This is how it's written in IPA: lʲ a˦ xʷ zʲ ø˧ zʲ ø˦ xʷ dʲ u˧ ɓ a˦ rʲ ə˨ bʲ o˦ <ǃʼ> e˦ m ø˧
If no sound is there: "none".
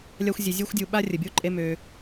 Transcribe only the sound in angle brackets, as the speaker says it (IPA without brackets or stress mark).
ǃʼ